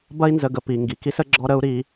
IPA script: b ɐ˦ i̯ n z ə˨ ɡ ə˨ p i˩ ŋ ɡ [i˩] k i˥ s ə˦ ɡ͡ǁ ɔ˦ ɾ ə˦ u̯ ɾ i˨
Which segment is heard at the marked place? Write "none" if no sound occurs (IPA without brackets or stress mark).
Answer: i˩